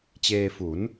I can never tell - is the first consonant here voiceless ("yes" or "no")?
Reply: yes